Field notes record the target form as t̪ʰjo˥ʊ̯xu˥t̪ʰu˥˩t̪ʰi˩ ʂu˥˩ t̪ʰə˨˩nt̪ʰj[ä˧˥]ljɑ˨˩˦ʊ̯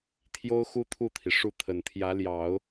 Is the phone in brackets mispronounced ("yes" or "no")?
no